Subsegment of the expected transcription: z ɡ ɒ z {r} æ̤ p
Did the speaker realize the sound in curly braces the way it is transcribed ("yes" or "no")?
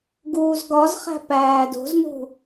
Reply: no